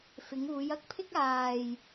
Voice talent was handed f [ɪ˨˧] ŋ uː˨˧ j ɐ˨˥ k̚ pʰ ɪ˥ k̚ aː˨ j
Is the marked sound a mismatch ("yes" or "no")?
no